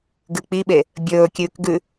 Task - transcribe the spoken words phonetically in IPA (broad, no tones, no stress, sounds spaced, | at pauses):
ɡ ɨ k͡p i ɓ e | bʲ ɵː kʲ ʉː k ɡ ʉ